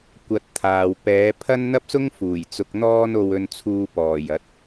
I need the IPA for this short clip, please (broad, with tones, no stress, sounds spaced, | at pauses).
kʷ ɐ˧ t̚ t̪ʰ aː˨ w p ɛː˨˧ pʰ ɐ˥ n n̪ ɐ˥ p̚ s ʊ˥ ŋ f uː˨˩ j t͡s ʊ˧ k̚ n̪ ɔː˥ n o˧ w ɵ˧ n t͡sʰ uː˧ p ɔː˨˩ j ɐ˨˥ t̚